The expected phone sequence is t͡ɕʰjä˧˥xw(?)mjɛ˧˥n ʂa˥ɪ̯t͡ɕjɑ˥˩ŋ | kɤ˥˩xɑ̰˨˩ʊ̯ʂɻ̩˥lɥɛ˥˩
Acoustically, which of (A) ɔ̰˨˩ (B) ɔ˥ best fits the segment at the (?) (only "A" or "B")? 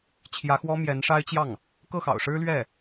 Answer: B